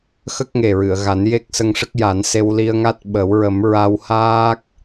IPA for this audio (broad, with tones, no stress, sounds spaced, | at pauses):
x ə˦˥ k̚ ŋ e˨˩ ɹ ɨ˨˩˨ ə̯ ɣ a˨˩˦ n j e˦˥ k̚ s ə˧ ŋ ʂ ə˦˥ k̚ j a˨˩˦ n s e˧ w l i˧ ə̯ ŋ a˦˥ t̚ ɓ ə˨˩˦ w ɹ ə˨˩˦ m ɹ a˧ w h aː˦˥ k̚